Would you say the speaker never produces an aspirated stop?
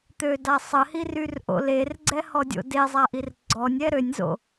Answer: yes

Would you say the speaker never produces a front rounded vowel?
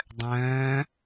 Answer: no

